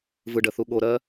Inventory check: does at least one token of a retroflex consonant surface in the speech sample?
yes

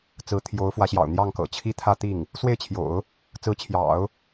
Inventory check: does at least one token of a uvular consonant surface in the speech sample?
no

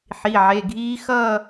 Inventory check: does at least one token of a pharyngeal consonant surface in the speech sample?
yes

